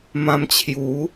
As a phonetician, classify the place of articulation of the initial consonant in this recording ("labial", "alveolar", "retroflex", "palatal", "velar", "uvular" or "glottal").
labial